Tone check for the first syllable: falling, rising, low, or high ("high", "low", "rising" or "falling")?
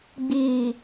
low